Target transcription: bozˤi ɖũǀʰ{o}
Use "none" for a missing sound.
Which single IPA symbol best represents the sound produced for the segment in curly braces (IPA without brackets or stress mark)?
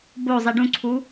u